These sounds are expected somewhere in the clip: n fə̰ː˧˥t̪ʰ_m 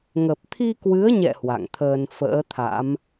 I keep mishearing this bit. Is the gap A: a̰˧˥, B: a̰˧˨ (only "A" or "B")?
A